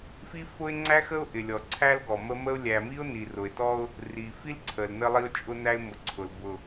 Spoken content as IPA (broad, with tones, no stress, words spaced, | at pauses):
fi˦fʊ˦ɪ̯ŋ͡ǀæ˦xə˦ʊ̯ ʔɪ˨lʲɔ˨ǀʰæ˦lɡɔ˨ mə˦mə˦ʊ̯ lʲæ˨mi˦ʊ̯ ni˨rʊ˨ɪ̯tɔ˦ʊ̯ | ri˨fi˦lǀʰə˨l nə˦lˠi˦ʊ̯t͡ʃʼʊ˦næ˦ɪ̯ mʊ˨ǀʰʊ˨l bʊ˨